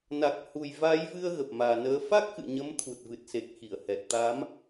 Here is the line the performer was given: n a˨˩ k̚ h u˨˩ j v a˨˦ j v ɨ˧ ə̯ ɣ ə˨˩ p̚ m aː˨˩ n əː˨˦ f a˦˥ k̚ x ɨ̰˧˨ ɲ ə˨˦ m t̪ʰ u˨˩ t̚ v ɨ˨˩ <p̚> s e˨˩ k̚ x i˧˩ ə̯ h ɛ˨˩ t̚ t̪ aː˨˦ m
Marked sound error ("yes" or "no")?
yes